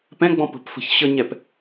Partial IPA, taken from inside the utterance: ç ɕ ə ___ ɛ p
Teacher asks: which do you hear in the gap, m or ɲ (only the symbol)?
ɲ